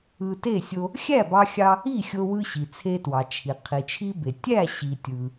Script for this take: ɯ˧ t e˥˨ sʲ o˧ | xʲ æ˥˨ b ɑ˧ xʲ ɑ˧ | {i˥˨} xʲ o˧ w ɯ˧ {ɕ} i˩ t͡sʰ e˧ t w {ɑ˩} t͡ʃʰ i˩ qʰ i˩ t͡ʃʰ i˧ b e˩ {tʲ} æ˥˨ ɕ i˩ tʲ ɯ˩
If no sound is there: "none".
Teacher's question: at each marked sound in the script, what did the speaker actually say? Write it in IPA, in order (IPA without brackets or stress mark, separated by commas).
i˥˨, ɕ, ɑ˩, tʲ